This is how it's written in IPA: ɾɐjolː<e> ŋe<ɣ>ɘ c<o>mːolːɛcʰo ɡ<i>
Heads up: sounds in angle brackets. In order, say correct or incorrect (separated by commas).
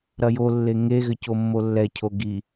correct, correct, correct, correct